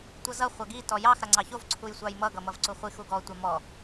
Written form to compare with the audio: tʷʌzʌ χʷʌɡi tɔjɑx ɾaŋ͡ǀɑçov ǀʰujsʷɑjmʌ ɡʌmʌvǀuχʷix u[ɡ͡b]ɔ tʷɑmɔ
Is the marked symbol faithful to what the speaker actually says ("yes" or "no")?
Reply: no